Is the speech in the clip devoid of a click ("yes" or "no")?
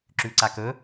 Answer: no